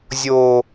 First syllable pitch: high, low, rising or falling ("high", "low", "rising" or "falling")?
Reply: high